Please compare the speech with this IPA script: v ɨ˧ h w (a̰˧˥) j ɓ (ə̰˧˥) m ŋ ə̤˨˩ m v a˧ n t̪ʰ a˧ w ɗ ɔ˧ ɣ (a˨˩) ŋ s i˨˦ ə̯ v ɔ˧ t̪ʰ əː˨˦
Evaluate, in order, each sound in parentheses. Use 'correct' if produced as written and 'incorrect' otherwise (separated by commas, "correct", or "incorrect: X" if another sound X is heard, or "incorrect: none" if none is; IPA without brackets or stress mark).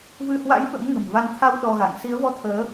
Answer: correct, correct, incorrect: a̰˧˨